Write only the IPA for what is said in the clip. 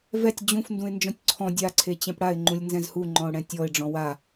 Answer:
vɛtʲ d͡ʑũf ndũɪ̯nd͡ʒɔ̃tʲǀʰɔ̃ dʲa ǀʰet͡ɕɛ̃pɽaɪ̯ ŋ͡ǃũlʲnzɛ̃zhu ŋ͡ǃɔ̃ʊ̯ɽɛ̃tʲɔɪ̯ ɖ͡ʐɔ̃wa

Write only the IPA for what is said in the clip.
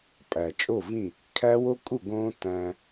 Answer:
pʼæ˨t͡ʃʼo˦˨vĩ˦˨ | kʰæ˦wo˦kʼu˦˨ ɡõ˦tæ̃˧

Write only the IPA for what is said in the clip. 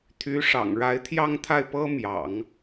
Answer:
t̪ʰy˧˥ ʂɑ̰˨˩ŋɻa˧˥ɪ̯t̪ʰjɑ˥˧ŋt̪ʰa˥˩ɪ̯ pɤ˥mjɑ̰˨˩˦ŋ

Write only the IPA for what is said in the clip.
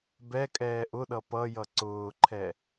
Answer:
bɛkʼɛː ʔʊɗʌ pʌjʌ ǀʊːǃʰɛ

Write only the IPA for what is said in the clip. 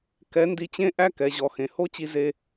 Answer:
kɛ˧˥ ndi˧t͡ɕẽ˥ʔæ˥ kɛ˩˧ʑɔ˩ xẽ˩ho˥t͡ɕi˧ ze˧

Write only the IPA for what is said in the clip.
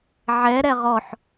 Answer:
ʕɛɾɛ ʁɔħ

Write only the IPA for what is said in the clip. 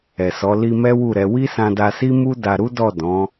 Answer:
ɛ˨sɔ˨˦ li˧ mɛ˦wu˦˨ɾɛ˧ wi˦sã˧da˧si˦ mu˦da˧ɾu˦dɔ˦˨ dɔ̃˨˦

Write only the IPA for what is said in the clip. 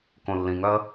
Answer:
kõlːĩŋœə̯

